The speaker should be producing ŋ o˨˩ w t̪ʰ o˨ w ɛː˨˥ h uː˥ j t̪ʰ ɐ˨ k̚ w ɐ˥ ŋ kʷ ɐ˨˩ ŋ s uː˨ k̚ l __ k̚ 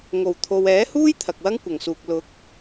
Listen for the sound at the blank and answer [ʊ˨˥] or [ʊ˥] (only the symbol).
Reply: ʊ˨˥